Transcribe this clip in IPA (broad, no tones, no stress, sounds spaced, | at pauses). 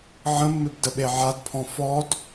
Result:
ʕ ə̃ mː ɪ b d ə ɓ e ʕ a d pʰ ɔ̃ f ɔ d